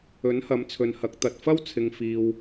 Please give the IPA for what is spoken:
ɵ˨˥ n h ɐ˨˥ m t͡sʰ ɵ˨ n h ɐ˨˥ k̚ t̪ ɐ˨ t̚ f ɐ˥ w t͡sʰ ɪ˨ ŋ f iː˨ w

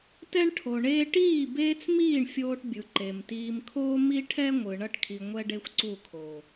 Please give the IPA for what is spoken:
t ɛ˦ ɳ ʈʰ o˨ ɳ eː˦ ʈ iː˦˨ b eː˦ t͡s m iː˦˨ ɳ fʲ oː˦ ʈ bʲ ɯ˨ ǃ e˨ m t iː˨ m kʰ oː˦ m i˦ ʈʰ ɛ˦ ŋʷ ɯ˨ ɳ ʌ˦ ʈ kʰ i˨ ŋʷ ɛ˦ ɖ e˦ xʷ ǀ u˦˨ kʰ oː˨

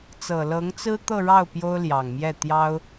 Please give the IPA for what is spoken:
t͡s ɤ˨˩ l ɤ˧˥ ŋ t͡s ɹ̩˥ t̪ ɤ˥˧ ɻ ɑ˥˩ ʊ̯ p j o˥ ʊ̯ l j ɑ˨˩ ŋ m j ɛ˥˩ t̪ j ɑ˥ ʊ̯

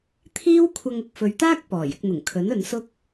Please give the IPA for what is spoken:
t̪ʰ iː˥ w kʷʰ ɐ˧ ŋ ʊ˧ k̚ f ɵ˨˧ ɥ t̪ aː˥ k̚ p ɔː˨˩ j ɪ˧ k̚ n̪ ʊ˨˩ ŋ kʰ ɵ˨˥ n ɵ˨˧ n s ʊ˥ k̚

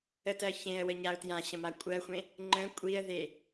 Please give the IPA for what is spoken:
ə t ɜ ç ẽ ə̯ w ə ɲ a ʊ̯ t j ã ɕ ə̃ m a kʷʼ ɜ xʷ ẽ | ŋ͡ǃ ə̃ kʷʼ i ə̯ ð e

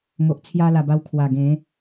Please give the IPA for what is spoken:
ŋ o˨ ʔ t͡sʰ j a˧ l a˨˩ b a˧ w kʰ w a˨˩ ɡ ẽ˨˦

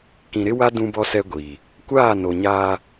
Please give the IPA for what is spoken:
k ĩ˨ ɾ ɪ˦ w a˦ d ũ˦ b ɔ˦ s ɛ˦ ɡʷ iː˨ | kʷ aː˦˨ n o˨ ɲ aː˦

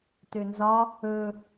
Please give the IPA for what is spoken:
t ø n z ɒ | ɵ

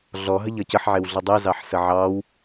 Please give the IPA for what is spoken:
ɮ ɔ ɦ ə ʎ ʌ c ə ħ ʕ e w ɮ ʌ dˤ e z ɑ ħ s ə ʕ ɑ w

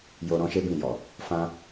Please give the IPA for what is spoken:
j o˧ ɾ ɔ̃˦ ʃ e˦ b ĩ˦˨ j ɔ˨ | f ã˦

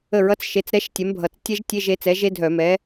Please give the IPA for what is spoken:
ə˧˩˧ ɹ ʌ˧˥ t͡s ʃ e˩˥ t͡s ɾ ɛ˧˥ ʃ tʲ ɛ˩˥ m bʱ ʌ˨˩ t͡s tʲ ɛ˥ ʒ tʲ e˧˥˧ ʒ e˩˥ t͡s ɛ˩˥ ʒ e˥ dʱ œ˧˩˧ m ɛ˩˥

